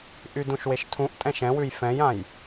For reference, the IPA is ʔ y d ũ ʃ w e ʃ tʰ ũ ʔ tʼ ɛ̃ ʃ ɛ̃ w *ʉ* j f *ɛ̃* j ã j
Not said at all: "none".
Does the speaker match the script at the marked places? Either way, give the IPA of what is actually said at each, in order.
ʉ, ɛ̃

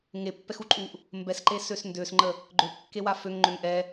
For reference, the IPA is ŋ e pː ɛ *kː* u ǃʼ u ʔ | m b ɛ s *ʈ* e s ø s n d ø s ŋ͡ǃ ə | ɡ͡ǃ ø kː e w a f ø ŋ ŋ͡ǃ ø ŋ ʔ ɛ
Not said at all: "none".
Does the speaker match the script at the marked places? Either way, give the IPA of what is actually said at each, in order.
x, ǃ

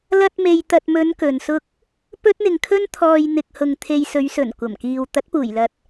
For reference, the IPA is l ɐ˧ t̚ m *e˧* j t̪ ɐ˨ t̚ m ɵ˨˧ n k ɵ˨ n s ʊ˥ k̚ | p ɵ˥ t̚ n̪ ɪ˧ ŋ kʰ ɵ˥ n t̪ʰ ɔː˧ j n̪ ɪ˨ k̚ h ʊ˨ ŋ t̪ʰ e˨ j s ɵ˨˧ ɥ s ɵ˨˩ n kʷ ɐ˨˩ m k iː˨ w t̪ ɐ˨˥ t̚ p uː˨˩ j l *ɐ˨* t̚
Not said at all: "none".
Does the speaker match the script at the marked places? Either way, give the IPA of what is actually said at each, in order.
e˨, ɐ˨

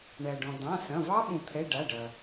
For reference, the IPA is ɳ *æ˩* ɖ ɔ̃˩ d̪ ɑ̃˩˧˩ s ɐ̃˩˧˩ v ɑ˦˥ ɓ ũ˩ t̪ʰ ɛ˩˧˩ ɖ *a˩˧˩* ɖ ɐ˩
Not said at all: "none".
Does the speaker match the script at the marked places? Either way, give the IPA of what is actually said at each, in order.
æ˩, a˩˧˩

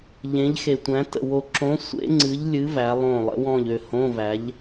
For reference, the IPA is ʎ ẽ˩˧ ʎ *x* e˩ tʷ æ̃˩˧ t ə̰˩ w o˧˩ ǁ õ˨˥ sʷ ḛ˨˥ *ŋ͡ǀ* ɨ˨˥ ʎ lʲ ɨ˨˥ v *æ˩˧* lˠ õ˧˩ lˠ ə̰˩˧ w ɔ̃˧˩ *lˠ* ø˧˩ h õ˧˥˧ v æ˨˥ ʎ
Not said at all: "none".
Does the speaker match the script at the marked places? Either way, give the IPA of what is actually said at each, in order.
x, ŋ͡ǀ, æ˩˧, ʎ

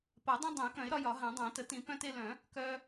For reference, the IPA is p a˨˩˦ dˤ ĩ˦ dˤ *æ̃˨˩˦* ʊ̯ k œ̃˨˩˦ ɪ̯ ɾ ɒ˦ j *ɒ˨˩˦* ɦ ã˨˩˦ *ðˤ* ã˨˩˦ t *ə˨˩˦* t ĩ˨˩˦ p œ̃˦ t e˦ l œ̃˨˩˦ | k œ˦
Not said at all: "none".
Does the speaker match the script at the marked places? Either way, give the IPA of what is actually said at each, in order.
ɛ̃˨˩˦, ɒ˨˩˦, dˤ, ə˨˩˦

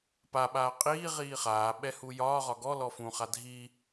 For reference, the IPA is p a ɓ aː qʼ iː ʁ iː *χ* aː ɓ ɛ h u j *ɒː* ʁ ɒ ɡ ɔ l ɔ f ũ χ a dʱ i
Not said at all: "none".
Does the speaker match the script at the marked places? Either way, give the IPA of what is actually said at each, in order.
χ, ɒː

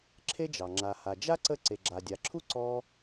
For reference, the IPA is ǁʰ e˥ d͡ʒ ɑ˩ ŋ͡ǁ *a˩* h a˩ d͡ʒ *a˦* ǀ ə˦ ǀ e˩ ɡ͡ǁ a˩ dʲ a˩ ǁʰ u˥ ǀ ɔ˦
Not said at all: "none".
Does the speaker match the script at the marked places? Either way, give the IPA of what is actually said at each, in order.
a˩, a˥

